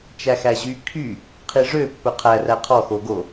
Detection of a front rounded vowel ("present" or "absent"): present